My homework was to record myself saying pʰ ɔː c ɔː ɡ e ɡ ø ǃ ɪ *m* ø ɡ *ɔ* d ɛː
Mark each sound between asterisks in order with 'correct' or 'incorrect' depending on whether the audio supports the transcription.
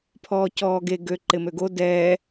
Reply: correct, incorrect: o

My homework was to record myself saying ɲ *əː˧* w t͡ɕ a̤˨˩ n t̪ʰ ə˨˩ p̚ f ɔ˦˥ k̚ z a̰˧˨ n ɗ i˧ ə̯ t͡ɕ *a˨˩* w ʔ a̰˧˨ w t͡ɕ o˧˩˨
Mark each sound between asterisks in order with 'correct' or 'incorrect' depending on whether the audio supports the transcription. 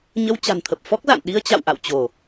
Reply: incorrect: ə˧, incorrect: a̰˧˨

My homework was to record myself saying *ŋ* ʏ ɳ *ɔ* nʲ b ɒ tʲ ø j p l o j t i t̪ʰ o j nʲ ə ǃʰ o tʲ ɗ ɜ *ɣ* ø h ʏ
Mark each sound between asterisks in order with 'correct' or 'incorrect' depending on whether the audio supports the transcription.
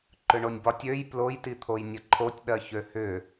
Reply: incorrect: ǃ, incorrect: o, incorrect: ç

